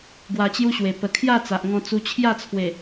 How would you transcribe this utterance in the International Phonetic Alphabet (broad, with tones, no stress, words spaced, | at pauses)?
ɡwa˧t͡ɕju˦ɕwe˨˩ pə˨˩kʰja˥˧ t͡sa˨ʔŋɔ̃˧t͡su˧t͡ɕʰja˥˧ t͡sʰwe˨˩